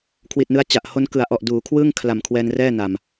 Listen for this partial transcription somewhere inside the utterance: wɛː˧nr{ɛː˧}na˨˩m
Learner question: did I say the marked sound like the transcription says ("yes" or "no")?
no